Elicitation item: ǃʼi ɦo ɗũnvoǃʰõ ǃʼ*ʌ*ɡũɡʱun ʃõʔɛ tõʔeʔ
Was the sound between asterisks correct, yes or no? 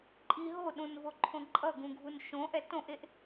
yes